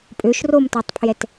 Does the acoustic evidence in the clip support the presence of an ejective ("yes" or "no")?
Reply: yes